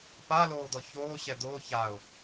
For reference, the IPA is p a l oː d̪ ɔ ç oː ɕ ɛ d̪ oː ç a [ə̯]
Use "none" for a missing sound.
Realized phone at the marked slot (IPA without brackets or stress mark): ʊ̯